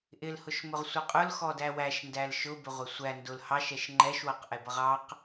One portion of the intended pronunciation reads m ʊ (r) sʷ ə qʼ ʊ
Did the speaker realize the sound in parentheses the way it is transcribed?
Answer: no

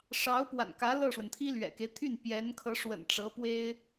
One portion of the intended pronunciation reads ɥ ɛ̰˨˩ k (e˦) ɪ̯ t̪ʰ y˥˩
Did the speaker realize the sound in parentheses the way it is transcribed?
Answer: yes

